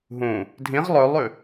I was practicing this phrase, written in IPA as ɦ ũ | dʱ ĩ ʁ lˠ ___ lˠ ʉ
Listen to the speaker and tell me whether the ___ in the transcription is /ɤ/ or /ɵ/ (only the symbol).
ɵ